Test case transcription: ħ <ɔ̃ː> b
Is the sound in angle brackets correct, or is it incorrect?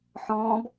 correct